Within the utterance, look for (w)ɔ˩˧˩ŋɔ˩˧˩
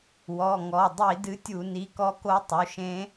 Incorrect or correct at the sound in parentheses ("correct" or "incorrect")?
correct